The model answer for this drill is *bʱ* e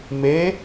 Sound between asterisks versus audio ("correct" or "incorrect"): incorrect